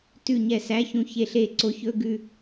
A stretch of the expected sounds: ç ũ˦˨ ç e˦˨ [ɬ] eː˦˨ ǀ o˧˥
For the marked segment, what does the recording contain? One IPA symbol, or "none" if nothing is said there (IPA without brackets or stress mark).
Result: ɬ